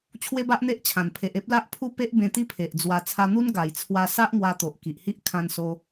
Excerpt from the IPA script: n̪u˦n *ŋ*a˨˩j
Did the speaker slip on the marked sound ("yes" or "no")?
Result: yes